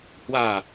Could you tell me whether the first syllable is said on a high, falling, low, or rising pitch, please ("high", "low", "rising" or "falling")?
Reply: falling